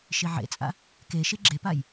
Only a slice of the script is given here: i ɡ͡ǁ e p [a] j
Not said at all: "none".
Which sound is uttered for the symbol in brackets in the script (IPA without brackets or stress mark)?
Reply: a